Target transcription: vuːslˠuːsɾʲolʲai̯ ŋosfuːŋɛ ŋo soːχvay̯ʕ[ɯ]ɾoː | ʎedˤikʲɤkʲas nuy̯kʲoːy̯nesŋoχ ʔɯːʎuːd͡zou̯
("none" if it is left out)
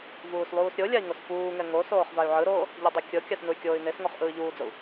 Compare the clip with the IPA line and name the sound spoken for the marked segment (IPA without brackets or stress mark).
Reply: ɯ